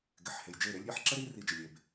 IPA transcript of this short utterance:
ɡɪ˨ħ he˨jd͡ʒe˦˨ɾe˦lʲ ɾʲɛ˨˦ħǁə˦ ɾi˧ri˨ d͡ʒɪ˨lʲe˨b

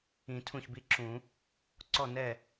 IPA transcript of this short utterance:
ĩ˨˩˦ tʰũ˥˩çbi˥˧ǁũ˨˩˦ | ǀɔ˥˩nɛ˥˩

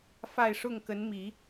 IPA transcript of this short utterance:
fa˥˧ɪ̯ʂʊ˥˩ŋ kə˧˥nmi˨˩˦

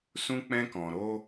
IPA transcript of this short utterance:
sũ˦k͡pɛ̃˦kɔ̃˧ ɾo˦

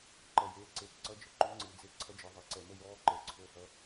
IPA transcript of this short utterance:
ǃʌ˨ jeː˨ ǀe˨˦tǀʌ˦d͡ʒə˨ ǃʉ˦ŋ͡ǀɨː˨d͡ze˦ ǀʰʌ˦d͡ʒɨ˨ðˤe˨ ǀɛ˨mə˦jɔː˦ ǃəː˨ǀʰo˦˨hʌ˦

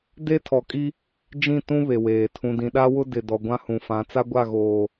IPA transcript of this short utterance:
de˦tʰɔ˨kʼi˦ | d͡ʒĩ˦˨ tũ˦ βe˨weː˨ tʰũ˨dĩ˨ɗa˦wʊ˦ dɪ˨ dɔ˨ɡʷã˦hũ˨fã˨˦ t͡sa˦ɡʷa˦˨ɣoː˨

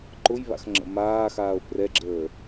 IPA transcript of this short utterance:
ǃʊjβa̰x ŋ͡ǁə̰maːxaːo̯ prɛɡ͡ǁəː

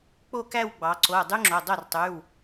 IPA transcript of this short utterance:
k͡po˥˧kæ˥˧wɡ͡bɑ˩˧ǀo˩˧˩ dˤy˥ŋ͡ǁo˩˧˩ dˤo˥˩rtˤy˩˧˩w

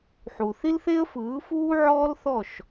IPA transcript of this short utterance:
ħu˨ θi˦lθe˦ə̯fɯː˨˦ fuː˦ʕɔː˦lθɔ˦˨ʃ

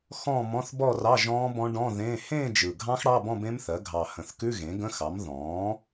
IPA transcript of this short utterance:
xɔ̃ː˥˧mɔ̃˧˥˧θbɔː˥˧rɑ˧˥˧ ʒɔ̃ː˦˥ bɔ̃˦˥ɖɔ̃˧˥˧ ðẽː˧˥˧ hẽː˥˧d͡ʒɯ˨˩ɡʱɑ̃˦˥x ɽɑ˧˥˧bɔ̃˥˧ bẽ˦˥mθɜ˩˥ ɡʱɑ˨˩hə̃˨˩θkʉ˧˥˧ ɣẽ˩˥ ɡə̃˧˥˧xɑ˩˥m ðɔ̃ː˩˥

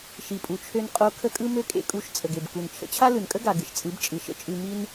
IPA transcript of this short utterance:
ʃi˨pʼu˨t͡ʃʰø˧n qʼo˧ kʰə˧kʼɯ˧ mø˦kʼḛ˦kʼu˧ʃ t͡sʼə˨ɡe˨bku˨n t͡ʃʰə̰˧t͡ɕʰa˦lɯ˨nkʼə˦ ɡa˨ ɡɨ˨ʃt͡sʼɯ˨˦bt͡ʃʼɯ˨ ʃə̰˦t͡ʃʼʉ˧ mi˧n

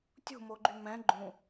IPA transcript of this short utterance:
tʲṳmoɡ͡ǃy mɛ̃ ɡ͡ǃũ

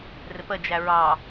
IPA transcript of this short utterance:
rɪpə d͡ʒæɹɑ

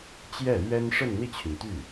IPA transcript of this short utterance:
t͡ɕjɛ˥˩lɥɛ˥n ʂə˥˧nn̪i˥˩t͡ɕʰy˩nt̪y˥˩

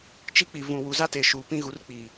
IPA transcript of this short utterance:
t͡ʃi˦k͡pi˨ vũ˨wu˨za˦teː˨ ʃuː˨pĩ˦ɣu˨˦rk͡piː˨

